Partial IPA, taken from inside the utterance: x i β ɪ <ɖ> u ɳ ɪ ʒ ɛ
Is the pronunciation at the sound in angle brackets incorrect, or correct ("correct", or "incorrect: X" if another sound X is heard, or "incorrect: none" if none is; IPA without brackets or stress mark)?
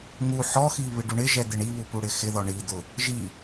correct